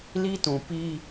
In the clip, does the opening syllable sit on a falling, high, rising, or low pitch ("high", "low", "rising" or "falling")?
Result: high